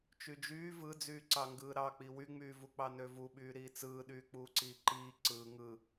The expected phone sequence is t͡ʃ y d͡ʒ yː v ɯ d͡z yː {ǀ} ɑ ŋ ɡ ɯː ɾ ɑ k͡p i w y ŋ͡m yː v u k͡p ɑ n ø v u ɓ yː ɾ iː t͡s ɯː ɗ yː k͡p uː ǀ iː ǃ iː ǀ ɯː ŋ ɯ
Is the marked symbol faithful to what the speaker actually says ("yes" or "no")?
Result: yes